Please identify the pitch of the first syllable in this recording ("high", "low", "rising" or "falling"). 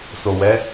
low